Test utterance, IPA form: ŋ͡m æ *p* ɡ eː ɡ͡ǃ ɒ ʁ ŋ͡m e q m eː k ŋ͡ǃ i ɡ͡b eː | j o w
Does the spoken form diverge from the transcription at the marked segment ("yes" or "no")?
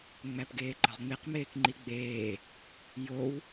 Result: no